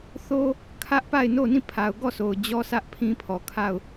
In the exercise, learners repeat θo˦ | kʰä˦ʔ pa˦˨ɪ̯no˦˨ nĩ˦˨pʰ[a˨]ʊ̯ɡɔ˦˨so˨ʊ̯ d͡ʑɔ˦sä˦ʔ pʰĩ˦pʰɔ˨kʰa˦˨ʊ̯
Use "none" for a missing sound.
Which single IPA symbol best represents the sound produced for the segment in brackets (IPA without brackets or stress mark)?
a˨